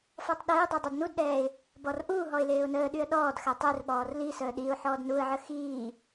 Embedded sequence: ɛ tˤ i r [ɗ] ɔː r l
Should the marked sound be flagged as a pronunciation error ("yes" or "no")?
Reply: yes